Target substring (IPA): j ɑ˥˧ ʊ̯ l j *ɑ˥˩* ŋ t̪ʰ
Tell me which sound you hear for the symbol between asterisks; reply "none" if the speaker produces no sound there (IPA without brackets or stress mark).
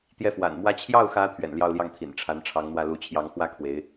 ɑ˥˩